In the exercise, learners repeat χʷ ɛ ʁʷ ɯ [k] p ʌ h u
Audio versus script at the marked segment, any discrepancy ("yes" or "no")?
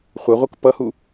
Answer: no